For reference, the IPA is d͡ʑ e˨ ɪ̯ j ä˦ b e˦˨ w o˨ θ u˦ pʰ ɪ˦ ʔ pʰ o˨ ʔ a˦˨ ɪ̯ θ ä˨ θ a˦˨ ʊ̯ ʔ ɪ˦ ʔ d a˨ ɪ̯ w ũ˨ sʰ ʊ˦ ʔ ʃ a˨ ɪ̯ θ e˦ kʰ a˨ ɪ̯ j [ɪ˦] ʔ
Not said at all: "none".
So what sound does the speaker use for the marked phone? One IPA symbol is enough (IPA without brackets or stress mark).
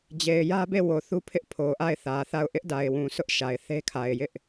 ɪ˦